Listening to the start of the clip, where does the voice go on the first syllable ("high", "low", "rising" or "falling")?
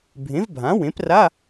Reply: rising